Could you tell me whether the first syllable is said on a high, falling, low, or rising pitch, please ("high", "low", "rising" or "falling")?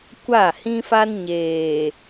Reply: falling